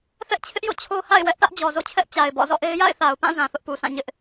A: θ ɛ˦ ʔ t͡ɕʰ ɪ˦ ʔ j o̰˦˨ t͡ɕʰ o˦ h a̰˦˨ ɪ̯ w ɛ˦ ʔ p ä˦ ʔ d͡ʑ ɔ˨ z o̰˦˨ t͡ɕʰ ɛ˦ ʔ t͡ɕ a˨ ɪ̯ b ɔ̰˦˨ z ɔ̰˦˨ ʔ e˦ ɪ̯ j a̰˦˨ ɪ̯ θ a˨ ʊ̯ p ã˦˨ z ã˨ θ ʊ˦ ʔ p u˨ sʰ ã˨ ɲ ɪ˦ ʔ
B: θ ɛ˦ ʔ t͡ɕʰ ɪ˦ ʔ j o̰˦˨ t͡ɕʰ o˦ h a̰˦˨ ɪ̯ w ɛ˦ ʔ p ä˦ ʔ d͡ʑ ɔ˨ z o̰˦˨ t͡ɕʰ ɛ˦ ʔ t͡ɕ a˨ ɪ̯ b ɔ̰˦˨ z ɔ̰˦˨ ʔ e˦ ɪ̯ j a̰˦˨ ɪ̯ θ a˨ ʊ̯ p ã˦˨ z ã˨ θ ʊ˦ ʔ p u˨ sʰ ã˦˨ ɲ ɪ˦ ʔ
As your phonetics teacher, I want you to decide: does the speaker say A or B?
B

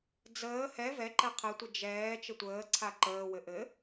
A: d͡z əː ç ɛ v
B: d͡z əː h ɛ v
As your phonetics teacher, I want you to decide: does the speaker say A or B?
B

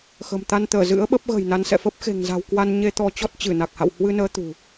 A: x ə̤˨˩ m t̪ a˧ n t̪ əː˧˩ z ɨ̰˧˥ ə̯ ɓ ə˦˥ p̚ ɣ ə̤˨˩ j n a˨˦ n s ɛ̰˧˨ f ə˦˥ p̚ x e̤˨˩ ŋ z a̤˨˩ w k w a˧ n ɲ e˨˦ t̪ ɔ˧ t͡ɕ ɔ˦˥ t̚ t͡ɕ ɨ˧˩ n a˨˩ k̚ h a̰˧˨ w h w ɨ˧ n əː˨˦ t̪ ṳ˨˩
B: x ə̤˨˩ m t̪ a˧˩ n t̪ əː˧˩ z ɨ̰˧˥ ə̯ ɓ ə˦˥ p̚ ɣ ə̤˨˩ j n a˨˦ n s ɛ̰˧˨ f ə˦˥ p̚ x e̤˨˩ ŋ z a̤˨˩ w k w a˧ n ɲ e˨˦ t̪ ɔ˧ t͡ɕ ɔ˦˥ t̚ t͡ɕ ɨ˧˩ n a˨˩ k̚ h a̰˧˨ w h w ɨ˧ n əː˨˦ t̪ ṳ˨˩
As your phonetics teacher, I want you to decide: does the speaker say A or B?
A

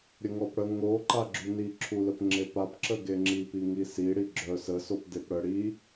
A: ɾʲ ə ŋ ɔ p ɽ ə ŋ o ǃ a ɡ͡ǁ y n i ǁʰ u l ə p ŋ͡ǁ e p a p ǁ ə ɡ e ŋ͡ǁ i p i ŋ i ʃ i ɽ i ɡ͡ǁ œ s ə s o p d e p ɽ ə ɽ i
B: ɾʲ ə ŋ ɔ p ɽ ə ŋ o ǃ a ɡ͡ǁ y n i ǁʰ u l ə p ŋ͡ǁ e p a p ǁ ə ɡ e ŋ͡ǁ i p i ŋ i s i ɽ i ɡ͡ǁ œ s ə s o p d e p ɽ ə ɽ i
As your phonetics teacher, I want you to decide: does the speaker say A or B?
B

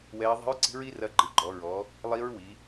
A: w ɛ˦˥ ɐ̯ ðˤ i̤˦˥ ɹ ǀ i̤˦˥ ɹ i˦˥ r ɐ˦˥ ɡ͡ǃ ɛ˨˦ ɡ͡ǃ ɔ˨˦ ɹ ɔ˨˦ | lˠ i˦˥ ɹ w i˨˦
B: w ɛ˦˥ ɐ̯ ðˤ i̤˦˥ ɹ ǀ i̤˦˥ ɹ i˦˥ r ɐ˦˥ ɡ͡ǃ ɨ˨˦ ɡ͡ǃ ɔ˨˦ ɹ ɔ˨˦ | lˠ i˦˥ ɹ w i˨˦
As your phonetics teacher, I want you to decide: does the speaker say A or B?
B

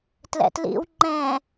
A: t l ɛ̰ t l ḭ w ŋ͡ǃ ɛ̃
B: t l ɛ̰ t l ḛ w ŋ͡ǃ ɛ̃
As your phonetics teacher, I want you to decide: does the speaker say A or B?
A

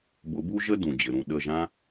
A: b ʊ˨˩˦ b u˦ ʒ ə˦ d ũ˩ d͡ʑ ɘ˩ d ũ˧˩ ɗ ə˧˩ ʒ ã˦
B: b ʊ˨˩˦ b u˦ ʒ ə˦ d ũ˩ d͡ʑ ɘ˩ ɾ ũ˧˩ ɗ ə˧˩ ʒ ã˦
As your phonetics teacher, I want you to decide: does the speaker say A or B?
B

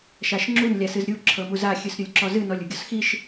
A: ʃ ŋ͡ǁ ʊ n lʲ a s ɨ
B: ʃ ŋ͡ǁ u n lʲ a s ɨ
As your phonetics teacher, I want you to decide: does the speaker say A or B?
B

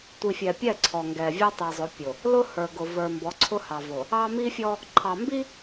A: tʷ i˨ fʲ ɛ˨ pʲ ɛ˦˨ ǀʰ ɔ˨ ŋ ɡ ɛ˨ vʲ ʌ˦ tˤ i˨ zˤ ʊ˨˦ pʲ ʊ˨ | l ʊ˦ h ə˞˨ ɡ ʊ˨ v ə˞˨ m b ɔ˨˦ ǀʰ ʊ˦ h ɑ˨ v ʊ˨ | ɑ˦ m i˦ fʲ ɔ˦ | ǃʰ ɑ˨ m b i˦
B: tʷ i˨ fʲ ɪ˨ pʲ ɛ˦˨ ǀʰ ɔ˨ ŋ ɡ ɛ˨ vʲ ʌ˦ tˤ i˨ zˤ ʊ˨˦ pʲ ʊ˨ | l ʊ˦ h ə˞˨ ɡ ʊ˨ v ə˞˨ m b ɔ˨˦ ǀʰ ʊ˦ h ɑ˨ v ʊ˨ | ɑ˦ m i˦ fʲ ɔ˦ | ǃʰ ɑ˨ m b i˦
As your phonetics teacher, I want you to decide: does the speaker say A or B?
A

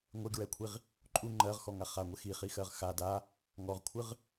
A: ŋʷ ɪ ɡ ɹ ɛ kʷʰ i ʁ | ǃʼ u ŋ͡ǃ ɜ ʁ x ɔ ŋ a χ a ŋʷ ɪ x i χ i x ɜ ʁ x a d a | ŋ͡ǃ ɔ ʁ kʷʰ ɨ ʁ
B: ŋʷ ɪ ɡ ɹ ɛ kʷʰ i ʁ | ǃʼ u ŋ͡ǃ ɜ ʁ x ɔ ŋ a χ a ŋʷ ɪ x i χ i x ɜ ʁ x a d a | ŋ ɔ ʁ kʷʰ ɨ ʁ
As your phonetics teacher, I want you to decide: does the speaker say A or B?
B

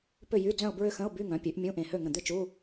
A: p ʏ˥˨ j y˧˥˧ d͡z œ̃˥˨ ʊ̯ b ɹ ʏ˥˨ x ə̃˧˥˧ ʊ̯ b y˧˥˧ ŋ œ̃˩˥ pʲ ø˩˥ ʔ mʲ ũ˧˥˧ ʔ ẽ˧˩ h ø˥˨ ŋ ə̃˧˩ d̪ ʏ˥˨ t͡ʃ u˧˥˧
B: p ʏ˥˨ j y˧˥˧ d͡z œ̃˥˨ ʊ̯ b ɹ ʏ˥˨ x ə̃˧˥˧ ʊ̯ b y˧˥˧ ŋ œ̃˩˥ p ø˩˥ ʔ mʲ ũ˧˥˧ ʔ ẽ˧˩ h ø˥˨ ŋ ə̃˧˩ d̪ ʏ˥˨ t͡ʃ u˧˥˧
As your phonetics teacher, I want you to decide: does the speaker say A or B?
A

